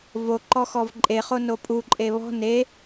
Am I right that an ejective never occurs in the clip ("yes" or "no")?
no